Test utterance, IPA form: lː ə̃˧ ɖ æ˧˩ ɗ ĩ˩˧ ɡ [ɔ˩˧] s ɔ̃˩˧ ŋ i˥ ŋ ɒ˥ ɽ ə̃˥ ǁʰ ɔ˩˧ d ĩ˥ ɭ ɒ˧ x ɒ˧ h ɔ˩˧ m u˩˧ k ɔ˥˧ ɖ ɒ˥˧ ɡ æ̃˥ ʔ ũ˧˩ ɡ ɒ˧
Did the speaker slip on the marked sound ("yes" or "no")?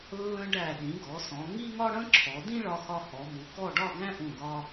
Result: no